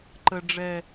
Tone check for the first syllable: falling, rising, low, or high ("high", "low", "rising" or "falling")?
high